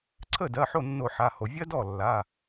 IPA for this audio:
ǀʰə˥˩dɜ˩˧˩ ħo˥˩nːo˧˩˧ħa˩˧˩ho˩ vʲɜ˥dɔ˥˩ lːa˩˧˩

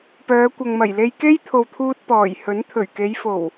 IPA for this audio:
pœː˨˧kʷɐ˨ŋmɐ˨˩jle˧j ke˥jt̪ʰo˨wt̪ʰuː˧t̚ pɔː˨˩j hɵ˨˥n t̪ʰɵ˨˩ɥke˨˧jfo˨˩w

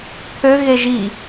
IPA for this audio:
t̪ʰø ɣeʒi

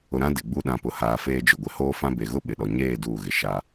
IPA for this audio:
ʊ˨ɾã˦ dɪ˨ɡ͡bu˦ ɗã˨pʊ˨haː˨ feː˦d͡ʒʊ˨ɡʷɪ˨ hoː˦fã˦ be˨ɣʊ˦ɓɪ˨ɗɔ˨ ɲeː˦˨ duː˦˨ɣɪ˨ ʃa˦

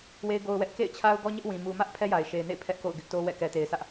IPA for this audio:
we˦ɪ̯ɡo˦ʊ̯wɛ˦ʔ kḛ˦˨ɪ̯t͡ɕʰa˦ʊ̯ ɡɔ˦ɲɪ˦ʔwĩ˨ mu˨mä˦ʔ pʰɛ˦ja˨ɪ̯ʃe˨ɪ̯nḛ˦˨ɪ̯ pʰɛ˦ʔko̰˦˨ʊ̯ ɡɪ˦ʔto˦wɛ̰˦˨ kɛ˨te˨ɪ̯ sä˦ʔ

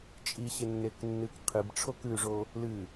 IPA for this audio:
t͡ʃʼiɕenːek nːɨkqʰɨb ʈ͡ʂʰokʉʐo | lɨ

